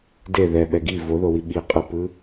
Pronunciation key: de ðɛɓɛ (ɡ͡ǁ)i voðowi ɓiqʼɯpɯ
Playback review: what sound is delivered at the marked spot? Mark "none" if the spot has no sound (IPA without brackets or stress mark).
ɡ